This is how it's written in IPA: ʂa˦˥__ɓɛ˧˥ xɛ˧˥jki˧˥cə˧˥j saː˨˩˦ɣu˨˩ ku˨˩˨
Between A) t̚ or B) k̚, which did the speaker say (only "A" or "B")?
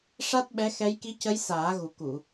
A